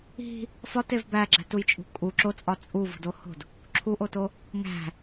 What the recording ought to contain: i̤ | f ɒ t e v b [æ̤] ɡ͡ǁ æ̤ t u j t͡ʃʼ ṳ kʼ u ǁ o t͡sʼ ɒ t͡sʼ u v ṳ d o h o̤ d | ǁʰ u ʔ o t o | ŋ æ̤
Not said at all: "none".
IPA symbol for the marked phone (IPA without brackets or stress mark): æ